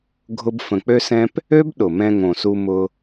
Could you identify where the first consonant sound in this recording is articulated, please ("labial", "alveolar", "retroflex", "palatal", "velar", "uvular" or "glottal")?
velar